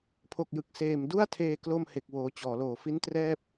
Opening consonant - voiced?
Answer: no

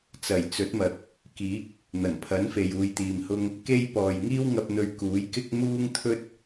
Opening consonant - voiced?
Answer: no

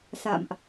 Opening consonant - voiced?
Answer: no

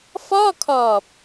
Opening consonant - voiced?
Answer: no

